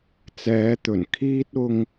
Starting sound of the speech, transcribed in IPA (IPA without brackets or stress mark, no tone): t͡s